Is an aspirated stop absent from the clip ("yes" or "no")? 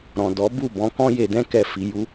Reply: yes